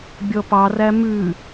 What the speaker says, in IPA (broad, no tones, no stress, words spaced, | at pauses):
bʲɔpɑræ mʉ